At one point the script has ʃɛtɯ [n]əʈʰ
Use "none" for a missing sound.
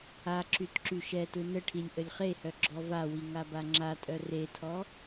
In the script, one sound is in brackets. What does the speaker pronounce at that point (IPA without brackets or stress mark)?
n